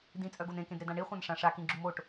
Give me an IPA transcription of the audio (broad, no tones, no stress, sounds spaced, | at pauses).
d ĩ t͡sʼ œ ɡ o n ẽ k ẽ d ɾ e d ã ɳ i χʷ ã n ʂ ã ʂ a k ĩ ɡ͡ǁ u m o ʈ